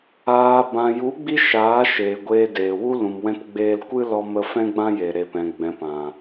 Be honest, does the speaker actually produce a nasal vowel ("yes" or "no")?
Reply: yes